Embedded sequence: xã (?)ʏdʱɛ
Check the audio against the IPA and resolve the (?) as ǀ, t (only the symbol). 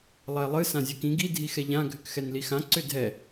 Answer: ǀ